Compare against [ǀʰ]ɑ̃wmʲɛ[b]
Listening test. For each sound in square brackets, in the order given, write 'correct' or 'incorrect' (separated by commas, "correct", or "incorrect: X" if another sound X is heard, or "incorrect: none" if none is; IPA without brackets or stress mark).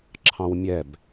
incorrect: ǁʰ, correct